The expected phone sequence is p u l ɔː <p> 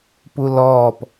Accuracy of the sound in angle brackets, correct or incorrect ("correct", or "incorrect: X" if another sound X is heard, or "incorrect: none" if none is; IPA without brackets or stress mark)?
correct